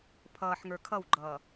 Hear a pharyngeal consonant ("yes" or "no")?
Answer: yes